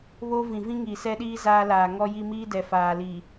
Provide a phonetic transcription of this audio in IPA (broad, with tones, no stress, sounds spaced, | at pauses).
β o˦ v ĩ˨ v ĩ˦ ŋ iː˨ s ɛ˦ ɗ iː˦ z aː˦ l aː˨ ŋ ɔ˦ j i˦ m iː˦ d ɛ˨ f aː˨ l iː˨